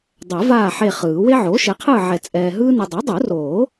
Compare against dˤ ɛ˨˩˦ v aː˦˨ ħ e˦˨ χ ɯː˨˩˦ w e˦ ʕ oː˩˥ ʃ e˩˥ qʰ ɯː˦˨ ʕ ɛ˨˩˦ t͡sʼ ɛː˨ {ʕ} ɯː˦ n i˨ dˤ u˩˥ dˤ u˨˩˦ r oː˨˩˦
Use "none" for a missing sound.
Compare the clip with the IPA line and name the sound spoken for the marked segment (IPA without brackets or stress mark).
ɦ